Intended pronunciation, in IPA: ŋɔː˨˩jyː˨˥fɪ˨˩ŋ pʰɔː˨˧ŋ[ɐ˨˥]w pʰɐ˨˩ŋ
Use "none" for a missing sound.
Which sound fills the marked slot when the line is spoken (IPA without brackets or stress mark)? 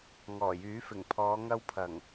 ɐ˧